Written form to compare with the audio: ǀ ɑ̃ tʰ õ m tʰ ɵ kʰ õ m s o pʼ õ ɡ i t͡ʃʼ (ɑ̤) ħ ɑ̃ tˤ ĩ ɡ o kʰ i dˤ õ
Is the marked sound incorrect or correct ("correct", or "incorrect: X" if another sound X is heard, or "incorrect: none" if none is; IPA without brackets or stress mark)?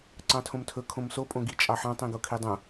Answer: incorrect: ɑ